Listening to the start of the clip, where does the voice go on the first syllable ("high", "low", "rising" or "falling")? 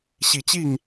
low